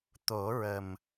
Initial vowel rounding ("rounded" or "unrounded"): rounded